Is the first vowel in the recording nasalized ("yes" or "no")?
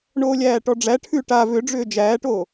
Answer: no